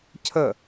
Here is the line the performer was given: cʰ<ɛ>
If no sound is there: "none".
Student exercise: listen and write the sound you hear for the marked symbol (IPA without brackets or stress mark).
ə